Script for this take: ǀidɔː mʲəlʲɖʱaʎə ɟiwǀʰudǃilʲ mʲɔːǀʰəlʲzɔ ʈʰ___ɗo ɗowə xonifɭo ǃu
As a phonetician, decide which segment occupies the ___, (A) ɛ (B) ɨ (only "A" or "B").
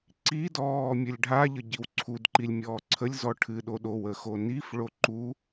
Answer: B